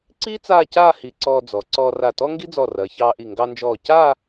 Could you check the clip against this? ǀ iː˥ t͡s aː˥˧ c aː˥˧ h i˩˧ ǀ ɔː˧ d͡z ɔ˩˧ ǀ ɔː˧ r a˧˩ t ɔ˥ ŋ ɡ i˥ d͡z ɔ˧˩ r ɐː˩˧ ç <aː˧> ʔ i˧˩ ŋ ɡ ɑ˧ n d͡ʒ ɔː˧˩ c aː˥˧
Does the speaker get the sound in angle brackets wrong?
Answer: yes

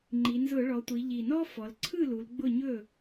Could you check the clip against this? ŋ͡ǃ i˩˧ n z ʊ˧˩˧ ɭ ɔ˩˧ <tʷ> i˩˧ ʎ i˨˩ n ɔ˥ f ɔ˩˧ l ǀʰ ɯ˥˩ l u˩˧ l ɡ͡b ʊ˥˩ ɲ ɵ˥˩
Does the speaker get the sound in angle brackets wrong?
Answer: no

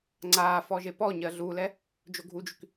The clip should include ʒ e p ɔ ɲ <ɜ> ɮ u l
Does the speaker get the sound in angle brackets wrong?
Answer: no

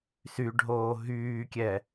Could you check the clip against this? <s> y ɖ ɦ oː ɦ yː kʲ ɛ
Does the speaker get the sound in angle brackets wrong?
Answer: no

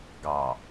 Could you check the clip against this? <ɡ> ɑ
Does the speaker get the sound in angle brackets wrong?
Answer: no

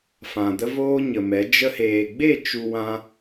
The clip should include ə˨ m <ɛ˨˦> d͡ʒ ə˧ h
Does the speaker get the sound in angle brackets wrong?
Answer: no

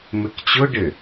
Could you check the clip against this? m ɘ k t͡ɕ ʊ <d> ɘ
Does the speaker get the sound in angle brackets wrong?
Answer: yes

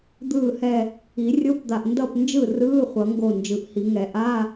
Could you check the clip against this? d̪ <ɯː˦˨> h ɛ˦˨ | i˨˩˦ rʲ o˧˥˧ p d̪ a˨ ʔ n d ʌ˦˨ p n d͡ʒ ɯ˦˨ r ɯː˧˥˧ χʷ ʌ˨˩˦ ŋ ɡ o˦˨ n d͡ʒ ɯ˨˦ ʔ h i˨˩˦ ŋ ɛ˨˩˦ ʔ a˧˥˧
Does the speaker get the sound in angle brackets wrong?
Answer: no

